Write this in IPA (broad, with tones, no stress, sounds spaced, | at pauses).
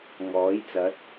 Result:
ŋ ɔː˨˥ j t͡s ɐ˨˥ t̚